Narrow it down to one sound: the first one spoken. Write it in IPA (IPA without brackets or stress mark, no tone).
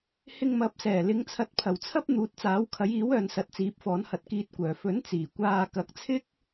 h